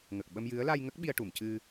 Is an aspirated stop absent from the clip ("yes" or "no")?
yes